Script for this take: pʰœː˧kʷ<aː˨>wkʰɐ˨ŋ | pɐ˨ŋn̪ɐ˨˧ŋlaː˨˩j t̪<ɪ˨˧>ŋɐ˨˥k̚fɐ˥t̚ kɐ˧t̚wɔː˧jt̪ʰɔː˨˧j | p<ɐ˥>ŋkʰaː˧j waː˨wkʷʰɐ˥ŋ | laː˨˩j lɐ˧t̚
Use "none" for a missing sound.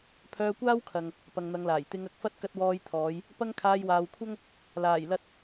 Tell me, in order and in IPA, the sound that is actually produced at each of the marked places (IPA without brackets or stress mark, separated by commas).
aː˥, ɪ˨˧, ɐ˥